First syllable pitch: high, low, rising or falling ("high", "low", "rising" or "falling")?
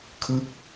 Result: falling